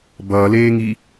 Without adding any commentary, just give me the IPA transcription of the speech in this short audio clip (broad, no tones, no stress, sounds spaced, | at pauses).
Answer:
b ʌː l eː ŋ i